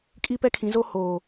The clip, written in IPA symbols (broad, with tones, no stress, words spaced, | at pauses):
kʼi˦pɛ˦kʰĩ˨˦zo˦ hoː˨